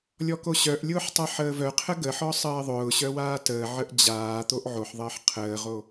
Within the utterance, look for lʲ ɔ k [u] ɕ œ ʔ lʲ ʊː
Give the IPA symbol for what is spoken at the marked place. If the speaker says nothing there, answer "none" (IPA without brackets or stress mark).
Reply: o